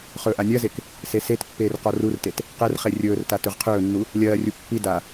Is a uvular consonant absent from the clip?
no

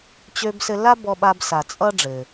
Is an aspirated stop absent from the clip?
yes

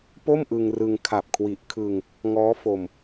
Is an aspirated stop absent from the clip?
no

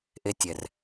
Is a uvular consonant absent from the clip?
yes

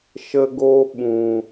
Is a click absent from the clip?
yes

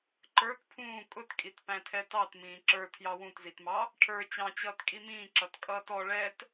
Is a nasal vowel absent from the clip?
no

